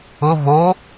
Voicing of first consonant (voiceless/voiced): voiced